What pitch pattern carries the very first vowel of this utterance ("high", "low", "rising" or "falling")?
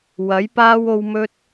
rising